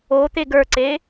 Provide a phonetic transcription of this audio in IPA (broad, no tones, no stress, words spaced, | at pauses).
ot̪e ɡə˞ǀe